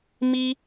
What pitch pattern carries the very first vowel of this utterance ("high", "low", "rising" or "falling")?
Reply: high